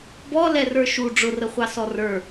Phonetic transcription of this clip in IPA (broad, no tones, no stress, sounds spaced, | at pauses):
b ɔ l ɛ r ə˞ ʃ u ɖ͡ʐ ʊ r ə χʷ ɑ s ɔ r ə˞